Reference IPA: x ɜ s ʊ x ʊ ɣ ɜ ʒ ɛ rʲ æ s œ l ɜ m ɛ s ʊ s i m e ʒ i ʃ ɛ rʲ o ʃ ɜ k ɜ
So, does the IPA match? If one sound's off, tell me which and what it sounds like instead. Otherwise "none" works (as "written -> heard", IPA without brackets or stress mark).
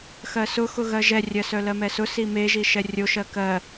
æ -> ɜ